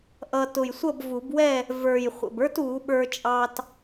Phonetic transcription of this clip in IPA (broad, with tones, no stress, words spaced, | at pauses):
ʔʌ˧ tʊ˨˩jsʷʌ˥˨bvu˨˩˦bwɛ˥˨ | və˞˨˩j χʷə̰˨˩bə˞˥t u˨˩˦ɓə˞˧t͡ʃʼɑ˧t